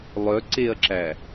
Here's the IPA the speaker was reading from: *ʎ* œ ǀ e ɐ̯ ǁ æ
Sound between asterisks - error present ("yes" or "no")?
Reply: yes